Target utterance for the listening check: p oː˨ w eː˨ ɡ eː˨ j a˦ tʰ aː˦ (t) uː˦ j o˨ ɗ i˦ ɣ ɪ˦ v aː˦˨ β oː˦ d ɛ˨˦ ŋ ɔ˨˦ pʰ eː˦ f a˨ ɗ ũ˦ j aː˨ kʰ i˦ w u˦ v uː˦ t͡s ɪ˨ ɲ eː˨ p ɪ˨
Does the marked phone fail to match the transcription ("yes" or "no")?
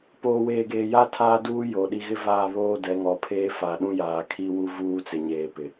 yes